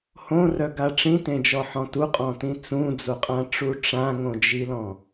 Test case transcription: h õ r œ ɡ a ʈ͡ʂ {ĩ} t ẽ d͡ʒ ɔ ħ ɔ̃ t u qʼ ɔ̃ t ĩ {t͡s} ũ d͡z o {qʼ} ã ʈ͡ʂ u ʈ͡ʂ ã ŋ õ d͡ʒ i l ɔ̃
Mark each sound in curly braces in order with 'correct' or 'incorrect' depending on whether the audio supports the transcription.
correct, correct, correct

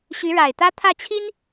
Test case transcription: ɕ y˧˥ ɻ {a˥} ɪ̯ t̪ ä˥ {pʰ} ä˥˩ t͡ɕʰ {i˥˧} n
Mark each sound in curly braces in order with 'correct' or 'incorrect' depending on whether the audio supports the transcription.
incorrect, incorrect, incorrect

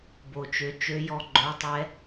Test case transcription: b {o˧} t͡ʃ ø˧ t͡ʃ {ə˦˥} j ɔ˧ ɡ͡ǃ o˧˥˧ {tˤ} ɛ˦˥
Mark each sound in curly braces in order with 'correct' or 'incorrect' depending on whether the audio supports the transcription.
correct, incorrect, correct

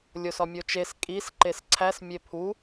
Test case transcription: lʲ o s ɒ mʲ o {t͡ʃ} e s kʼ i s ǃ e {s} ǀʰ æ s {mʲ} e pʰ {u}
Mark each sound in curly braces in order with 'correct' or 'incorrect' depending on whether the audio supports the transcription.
correct, correct, correct, correct

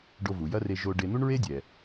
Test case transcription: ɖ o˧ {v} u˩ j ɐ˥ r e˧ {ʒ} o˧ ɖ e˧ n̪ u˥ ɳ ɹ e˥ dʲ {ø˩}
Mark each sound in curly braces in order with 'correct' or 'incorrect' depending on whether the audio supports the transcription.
correct, correct, incorrect

